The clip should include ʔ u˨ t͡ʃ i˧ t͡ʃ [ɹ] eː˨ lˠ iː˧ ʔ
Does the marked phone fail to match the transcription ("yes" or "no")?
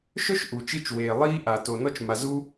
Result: yes